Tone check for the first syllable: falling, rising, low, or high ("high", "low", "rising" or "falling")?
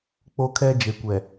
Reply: high